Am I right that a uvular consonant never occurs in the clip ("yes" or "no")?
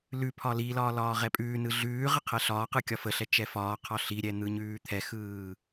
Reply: no